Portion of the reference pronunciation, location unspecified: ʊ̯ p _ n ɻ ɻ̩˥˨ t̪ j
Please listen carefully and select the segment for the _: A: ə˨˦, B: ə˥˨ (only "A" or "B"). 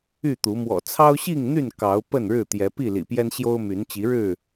B